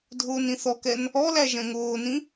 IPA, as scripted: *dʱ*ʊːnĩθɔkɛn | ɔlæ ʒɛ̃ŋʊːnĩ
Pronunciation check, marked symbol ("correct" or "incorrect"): correct